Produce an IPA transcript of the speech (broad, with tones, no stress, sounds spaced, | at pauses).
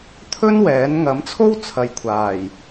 t̪ʰ ɵ˥ n w ɛː˨˥ n ŋ ɐ˨˥ m t͡sʰ o˥ w t͡sʰ ɐ˨ j kʷʰ aː˨˩ j